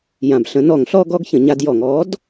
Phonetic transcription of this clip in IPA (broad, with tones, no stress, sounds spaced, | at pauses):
j ã˨˩ b ɬ ə̃˩˥ n ɔ˧˩˧ ŋ ɬ ɔ˦ ɡ ɔ˦ ɡ ç ə̃˧˩˧ ɲ a˦ d j ɔ˧˩˧ ŋ ɔ˩˥ d